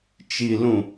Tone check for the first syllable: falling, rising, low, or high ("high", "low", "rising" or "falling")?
low